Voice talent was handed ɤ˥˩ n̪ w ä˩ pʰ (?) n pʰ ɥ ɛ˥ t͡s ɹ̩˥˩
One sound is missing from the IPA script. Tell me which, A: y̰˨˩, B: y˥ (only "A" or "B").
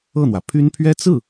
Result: B